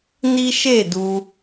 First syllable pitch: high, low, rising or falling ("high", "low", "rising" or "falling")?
high